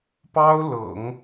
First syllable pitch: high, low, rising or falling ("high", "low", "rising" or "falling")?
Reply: high